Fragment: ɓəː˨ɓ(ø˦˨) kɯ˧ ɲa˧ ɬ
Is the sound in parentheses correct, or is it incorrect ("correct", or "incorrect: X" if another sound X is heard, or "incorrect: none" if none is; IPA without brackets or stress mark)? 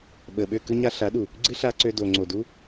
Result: correct